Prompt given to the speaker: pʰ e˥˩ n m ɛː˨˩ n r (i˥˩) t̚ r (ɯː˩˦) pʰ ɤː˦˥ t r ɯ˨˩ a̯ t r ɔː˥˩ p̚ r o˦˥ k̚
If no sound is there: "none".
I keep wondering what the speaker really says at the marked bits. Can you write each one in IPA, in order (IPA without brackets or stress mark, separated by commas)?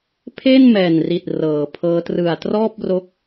i˨˩, ɤː˩˦